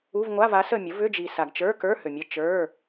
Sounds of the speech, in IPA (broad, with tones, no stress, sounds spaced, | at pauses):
u˧˥˧ v ŋʷ a˧˥˧ v a˩˥ s ə˦˨ mʲ ə˩˥ v ʏ˧˥˧ d͡ʒ i˨ s a˨ ɡ t͡ʃ ə˞˧˥˧ k ə˞˧˥˧ h ʏ˨ mʲ ə˧˥˧ t͡ʃ ə˞˧˥˧